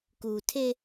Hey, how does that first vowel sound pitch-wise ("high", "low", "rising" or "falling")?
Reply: low